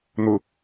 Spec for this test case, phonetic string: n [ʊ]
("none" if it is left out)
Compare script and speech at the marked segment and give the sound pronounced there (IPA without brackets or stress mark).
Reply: ʊ